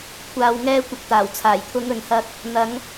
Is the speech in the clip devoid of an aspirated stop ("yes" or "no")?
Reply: no